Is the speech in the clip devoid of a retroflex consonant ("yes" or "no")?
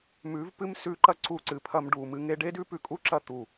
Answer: no